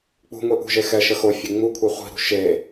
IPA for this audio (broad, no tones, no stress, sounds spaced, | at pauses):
k͡p ṳ ŋʷ i ʔ ṳ ʒ e x ɛ ʃ ə x o fʲ e ŋ͡m u kʷʰ e χʷ i̤ ɾ ṳ ʃ e